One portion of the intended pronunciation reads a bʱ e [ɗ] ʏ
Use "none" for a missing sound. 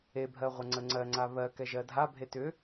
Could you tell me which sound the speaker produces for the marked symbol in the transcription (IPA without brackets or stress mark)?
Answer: t